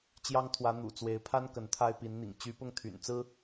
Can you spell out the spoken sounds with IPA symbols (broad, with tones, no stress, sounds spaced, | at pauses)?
t͡ɕ j ɑ˥ ŋ t̪ʰ w ä˧˥ n̪ ṵ˨˩ t͡s w e˧˥ ɪ̯ pʰ a˥ n k ə˧˥ n t̪ʰ a˥ ɪ̯ p i˧˥ n n̪ ḭ˨˩ ŋ t͡ɕ y˧˥ p ʊ˥˩ ŋ t̪ʰ y̰˨˩ n t͡s ɹ̩˥